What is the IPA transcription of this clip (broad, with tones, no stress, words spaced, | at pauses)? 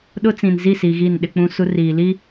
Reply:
ɗʊ˦ t͡sĩ˨nzi˦˨si˨ ɣi˦˨nɗɪ˦k͡pũ˦su˦ riː˨li˦